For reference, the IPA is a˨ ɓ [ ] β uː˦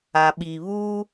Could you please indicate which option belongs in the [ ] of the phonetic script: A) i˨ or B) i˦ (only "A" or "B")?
A